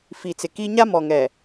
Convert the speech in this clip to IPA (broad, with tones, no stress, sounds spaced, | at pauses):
f i˨ t͡s ɪ˨ k i˦ ɲ a˦ m ɔ˨ ŋ ɛ˨